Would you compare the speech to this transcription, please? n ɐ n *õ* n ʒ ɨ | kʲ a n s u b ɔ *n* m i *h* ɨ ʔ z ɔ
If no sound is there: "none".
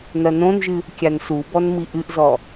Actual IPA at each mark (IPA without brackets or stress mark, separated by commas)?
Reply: õ, n, ʔ